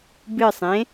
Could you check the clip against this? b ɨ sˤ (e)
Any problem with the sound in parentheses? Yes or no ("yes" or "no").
yes